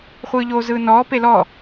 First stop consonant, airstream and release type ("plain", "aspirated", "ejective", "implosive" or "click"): plain